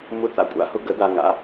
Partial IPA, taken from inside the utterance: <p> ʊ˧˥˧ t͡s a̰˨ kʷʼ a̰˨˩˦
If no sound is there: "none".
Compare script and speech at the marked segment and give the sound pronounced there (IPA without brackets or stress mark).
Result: m